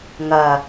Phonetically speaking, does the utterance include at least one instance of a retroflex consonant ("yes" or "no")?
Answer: no